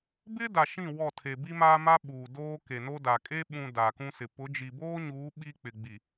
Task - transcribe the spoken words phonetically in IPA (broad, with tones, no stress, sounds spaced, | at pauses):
b ɪ˦ d a˨ ʃ ĩ˦˨ w ɔ˦˨ tʰ e˨ b i˦ m aː˦ m a˦ ɓ uː˨ d oː˦ k e˨ n o˦ d a˨ kʼ e˦ ɓ ũ˨ d a˨ k ũ˦ s ɪ˨ p ʊ˨˦ d͡ʒ i˨ b oː˦ ɲ uː˨˦ ɓ i˦ k͡p ɪ˨ ɡ͡b i˨